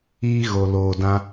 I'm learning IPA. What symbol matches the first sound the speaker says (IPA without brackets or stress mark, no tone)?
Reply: iː